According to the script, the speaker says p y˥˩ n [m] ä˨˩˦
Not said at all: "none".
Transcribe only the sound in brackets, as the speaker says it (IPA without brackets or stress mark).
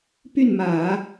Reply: m